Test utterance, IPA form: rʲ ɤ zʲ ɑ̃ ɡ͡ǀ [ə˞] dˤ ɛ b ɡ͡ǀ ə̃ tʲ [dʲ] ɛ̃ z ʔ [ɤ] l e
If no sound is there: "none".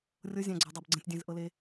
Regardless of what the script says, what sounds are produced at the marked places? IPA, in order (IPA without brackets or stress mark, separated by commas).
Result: ɤ, dʲ, ɤ